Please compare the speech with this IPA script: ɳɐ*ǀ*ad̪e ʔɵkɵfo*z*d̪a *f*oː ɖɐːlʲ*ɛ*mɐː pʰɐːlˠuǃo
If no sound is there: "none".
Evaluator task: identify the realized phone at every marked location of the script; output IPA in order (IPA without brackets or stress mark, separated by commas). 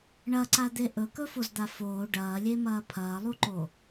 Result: ǀ, z, f, e